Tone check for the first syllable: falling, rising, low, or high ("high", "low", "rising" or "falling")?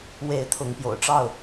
rising